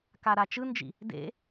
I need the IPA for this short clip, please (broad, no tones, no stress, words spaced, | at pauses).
kaɾat͡ʃɯnd͡ʒḭ | dḛ